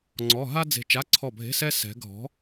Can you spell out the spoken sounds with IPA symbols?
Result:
ŋ͡ǀ ɔ˧˥˧ ɦ a˥ d͡z e̤˦˨ t͡ʃ a˧˥˧ ǀʰ ɔ˦˨ bʱ e̤˧˥˧ s ɛ˥ s ɛ̤˧˥ ɡʱ ɔ̤˧˥

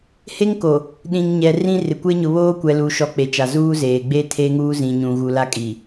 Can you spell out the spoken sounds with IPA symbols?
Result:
h e˦ ŋ k o˨ | ɗ ĩ˨ ŋ ɲ ɛ˨ r ĩ˦ r ɪ˨ kʷ e˦ ɲ ʊ˨ β oː˦ kʷ ɛ˨ l u˨ ʃ ɔ˨ k͡p e˨ t͡ʃ a˨ z uː˦ z eː˨ ɡ͡b e˦ tʰ e˦ ŋ uː˦ z ĩ˨ ɲ ũ˨ ɣ u˨ l a˦ kʼ i˨

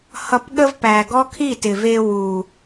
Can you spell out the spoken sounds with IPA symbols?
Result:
h ʌ˨ p ɠ ə˧ v p æ˨ ɡ ɔ˦ kʰ i˦˨ t ɪ˨ v e˧ w u˨

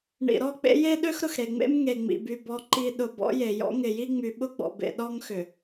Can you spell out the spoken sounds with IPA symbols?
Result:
ɳ ḭ˨ ɾ ɔ˦˨ k͡p ḛ˦ j e˦ ɗ ø˦ x ɾ ʊ˨ x ɾ e˨ ŋ͡m ḛ˦ m ŋ e˨ ŋ͡m ḭ˨ b y˨ b ɔ˨ ǃ i˨ ɗ ʊ˨ b ɔ̰˦ j e˨ j ɔ̰˦ ŋ ɪ˨ j i˦ ŋ͡m y˨ ɓ ʊ˦ ɡ͡b ɔ̰˨ b ḛ˨ ɗ ɔ˦ ŋ x ʏ˨

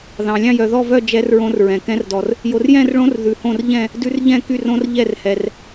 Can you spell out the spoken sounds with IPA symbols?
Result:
ð ɑ̃˧ lʲ ɑ̃˥˧ j œ˧ ð ɔ˥˧ v œ˥˧ d͡ʒ ɛ˦˥ r ɹ õ˦˥ r ɹ ɛ̃˧ k ɛ̃˦˥ r d ɔ˧ r | j o˧ r j ɛ̃˥˧ r ɭ õ˦˥ r ð ʉ˧ h õ˥˧ r ʎ ɛ̃˥˧ | d ʉ˦˥ r ʎ ɛ̃˥˧ k y˥˧ r õ˦˥ r ʎ ɛ˥˧ r h ɛ˧ r

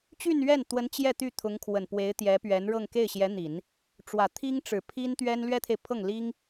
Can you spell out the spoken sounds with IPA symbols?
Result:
t͡ɕ y˥˧ n ɥ ɛ˥˩ n t̪ w ə˧˥ n t͡ɕ j ɛ˥˧ t̪ y˥˩ t̪ʰ ʊ˧˥ ŋ kʰ w ə˨˩ n p w e˧˥ ɪ̯ t̪ j ɛ˧˥ p ɥ ɛ˧˥ n ɻ ɤ˥˧ ŋ k e˥˩ ɪ̯ ɕ j ɛ˧˥ n̪ i˨˩˦ n | ʈ͡ʂ w ä˨˩ t̪ʰ i˥ ŋ ʈ͡ʂ ɻ̩˨˩ pʰ i˥ n t̪ ɥ ɛ˥ n l ɥ ɛ˥ t̪ʰ e˨ ɪ̯ pʰ ɤ˥˩ ŋ l i˥ ŋ

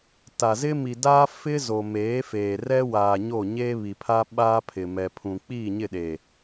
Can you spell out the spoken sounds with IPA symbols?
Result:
t a˨ z ɪ˦ m i˨ d aː˦ f ɪ˦ z o˨ m eː˨˦ f eː˨ r ɛ˦ w aː˨ ɲ o˦˨ ɲ eː˦ β i˨ pʰ a˦ ɓ aː˦ pʰ ɪ˨ m ɛ˨ pʰ ũ˨ k͡p iː˦˨ ɲ ɪ˦˨ ɗ e˨

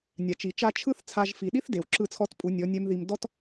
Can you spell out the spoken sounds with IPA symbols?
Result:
nʲ a˨ t͡ʃ i˨ t͡ʃ a˧ t͡ʃʰ ɯ˦ θ t͡sʰ a˧ ʒ f i˨ ɗ i˦ θ d e˨ w ǁ ɯ˦˨ t͡sʰ ɔ˦ t pʼ u˨˦ nʲ ɔ˨˦ nʲ ɛ˦ m ð i˧ m d ɔ˦ t

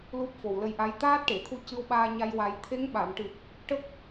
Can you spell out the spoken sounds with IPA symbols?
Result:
l u˦˥ p̚ f o˨˩ w l ə˧ j ʔ a˧˥ j t̪ aː˦˥ t̚ ʈ e˨˩˨ t̪ʰ u˧ c ɨ˧ w ɓ aː˧ ɲ a˧ j w a˨˩ j t̪ʰ e˧˥ ŋ ɓ a˨˩˨ m ʈ ɨ˨˩ t̚ | ʈ ə˦˥ k̚

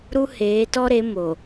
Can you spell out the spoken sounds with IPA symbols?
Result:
ɾ u˦ h eː˨˦ t ɔ˦ ɾ e˨˦ m o˨

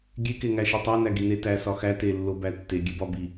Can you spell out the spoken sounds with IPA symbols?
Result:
ɡʲ e k e ŋ æ ʃ e tˤ æ n æ ɡ i n e t æ s ɒ x æ t e lː o b æ tː e ɡʲ e b ɒ b i

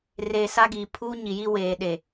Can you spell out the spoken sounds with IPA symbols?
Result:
r e˨ s a˦ ɡ iː˨ pʰ uː˦ ɲ i˨ j i˦ w eː˨ ɗ e˨

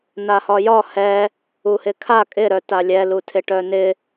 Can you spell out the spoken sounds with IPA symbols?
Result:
n a h ɒ j ɒ h ɛ | u h ɪ kʰ a kʼ ɪ ɾ œ t a lʲ ɛ l u tʰ ɪ ʈ œ n ɪ

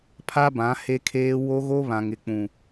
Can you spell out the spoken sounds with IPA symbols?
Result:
pʰ a˦ b ã˨˦ h e˦ kʰ eː˦ w o˦ ɣ o˦ β ã˨ ŋ ɪ˨ k͡p ũ˨

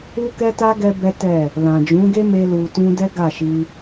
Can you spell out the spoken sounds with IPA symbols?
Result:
u˦ k ɛ˦ t a˦ ɡ ɛ˦ b ɛ˦ t ɛ˦˨ | l ã˨ d͡ʒ ũ˨˦ ɡ e˦ m e˦ l u˧ t ũ˦ d ɛ˦ ɡ a˦˨ ʃ i˧

